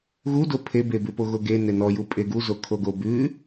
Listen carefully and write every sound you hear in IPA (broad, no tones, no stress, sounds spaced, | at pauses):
ɣ u d o pʰ e b e b ʉ p o ɣ o ɡ e n e n ɔ j u pʼ e ɡ u z o kʰ o ɡ o b ʉ